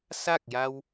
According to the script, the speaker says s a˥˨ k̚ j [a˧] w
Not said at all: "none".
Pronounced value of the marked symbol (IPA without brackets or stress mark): a˧